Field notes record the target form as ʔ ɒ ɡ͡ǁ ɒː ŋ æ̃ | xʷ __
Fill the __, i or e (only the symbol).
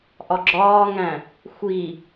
i